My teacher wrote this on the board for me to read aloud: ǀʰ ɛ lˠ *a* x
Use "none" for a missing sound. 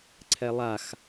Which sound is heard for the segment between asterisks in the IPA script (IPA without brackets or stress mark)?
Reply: a